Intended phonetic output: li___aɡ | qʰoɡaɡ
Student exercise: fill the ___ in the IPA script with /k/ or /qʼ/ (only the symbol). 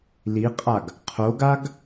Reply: qʼ